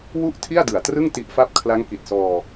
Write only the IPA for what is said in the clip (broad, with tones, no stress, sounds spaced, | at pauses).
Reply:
w u˥˩ ʔ tʰ i˥˩ a̯ d ɯ˨˩ a̯ t r ɯ˥˩ ŋ t i˦˥ ʔ f a˥˩ p̚ kʰ l a˦˥ ŋ k i˨˩ t̚ s ɔː˧